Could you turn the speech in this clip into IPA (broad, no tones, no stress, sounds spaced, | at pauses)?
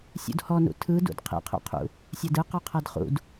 sʲ ṵ d h ɔ n ṵ tʰ ɯ d ṵ d qʰ ḭ qʰ o̰ qʰ ṵ | sʲ a d ɯ q ɔ qʰ a d χ ṵ d